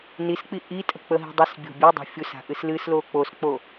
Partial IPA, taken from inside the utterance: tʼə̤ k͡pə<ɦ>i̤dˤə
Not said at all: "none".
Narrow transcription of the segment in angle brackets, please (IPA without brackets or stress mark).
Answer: ɦ